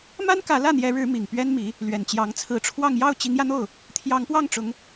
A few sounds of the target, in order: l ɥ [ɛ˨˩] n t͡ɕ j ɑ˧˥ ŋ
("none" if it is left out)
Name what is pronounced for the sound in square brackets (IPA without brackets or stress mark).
ɛ˨˩